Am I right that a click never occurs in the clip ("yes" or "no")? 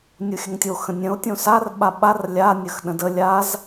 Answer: yes